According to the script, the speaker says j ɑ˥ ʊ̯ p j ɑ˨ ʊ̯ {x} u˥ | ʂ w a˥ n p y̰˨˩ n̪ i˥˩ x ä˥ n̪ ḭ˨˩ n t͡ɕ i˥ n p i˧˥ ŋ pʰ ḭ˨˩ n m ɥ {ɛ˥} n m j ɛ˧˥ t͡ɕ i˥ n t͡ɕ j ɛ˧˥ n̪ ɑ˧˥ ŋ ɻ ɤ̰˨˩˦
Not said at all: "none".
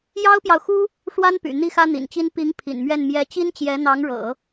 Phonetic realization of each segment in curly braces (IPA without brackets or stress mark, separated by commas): x, ɛ˥˩